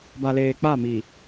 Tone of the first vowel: low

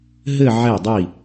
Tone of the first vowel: falling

